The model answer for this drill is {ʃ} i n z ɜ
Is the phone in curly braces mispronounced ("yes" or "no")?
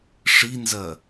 yes